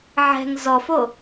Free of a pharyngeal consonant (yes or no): no